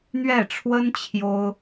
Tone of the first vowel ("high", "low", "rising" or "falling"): falling